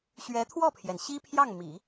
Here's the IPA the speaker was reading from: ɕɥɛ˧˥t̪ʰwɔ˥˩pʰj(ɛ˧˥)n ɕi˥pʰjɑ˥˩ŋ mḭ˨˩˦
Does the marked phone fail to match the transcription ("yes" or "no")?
yes